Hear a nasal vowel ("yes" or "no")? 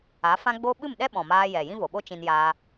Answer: yes